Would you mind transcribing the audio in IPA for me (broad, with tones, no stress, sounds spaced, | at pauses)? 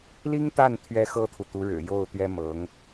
l i˥ ŋ t̪ a˥˩ n t̪ʰ ɥ ɛ˥ x ɤ˥ t̪ʰ u˨ t̪ u˧˥ ɻ ɻ̩˨˩ j o˥˩ ʊ̯ t̪ ɥ ɛ˥ m ɤ˧˥ ŋ